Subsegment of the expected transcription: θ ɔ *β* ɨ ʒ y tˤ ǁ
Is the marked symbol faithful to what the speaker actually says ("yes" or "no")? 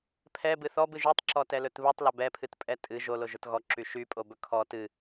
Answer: no